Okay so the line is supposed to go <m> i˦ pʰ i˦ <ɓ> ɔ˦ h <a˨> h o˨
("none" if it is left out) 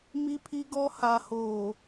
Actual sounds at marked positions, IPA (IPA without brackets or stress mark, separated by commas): m, ɡ, a˨